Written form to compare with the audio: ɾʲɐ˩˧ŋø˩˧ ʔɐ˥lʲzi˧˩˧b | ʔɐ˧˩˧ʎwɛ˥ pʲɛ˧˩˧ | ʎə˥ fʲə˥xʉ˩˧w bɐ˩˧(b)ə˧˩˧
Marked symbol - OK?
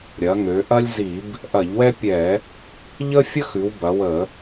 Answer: no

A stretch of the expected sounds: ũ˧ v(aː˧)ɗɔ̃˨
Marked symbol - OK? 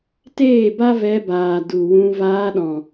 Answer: yes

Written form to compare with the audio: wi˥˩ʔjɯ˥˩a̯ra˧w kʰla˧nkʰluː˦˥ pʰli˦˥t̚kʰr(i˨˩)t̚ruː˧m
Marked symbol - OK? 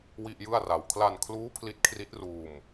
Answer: no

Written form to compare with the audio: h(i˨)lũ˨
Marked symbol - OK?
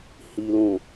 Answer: yes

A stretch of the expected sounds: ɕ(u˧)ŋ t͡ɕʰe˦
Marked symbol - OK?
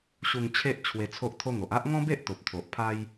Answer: yes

